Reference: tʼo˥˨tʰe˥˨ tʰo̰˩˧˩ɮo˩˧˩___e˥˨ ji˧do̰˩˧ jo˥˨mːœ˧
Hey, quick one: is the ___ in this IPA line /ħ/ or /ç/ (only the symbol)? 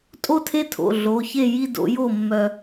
ç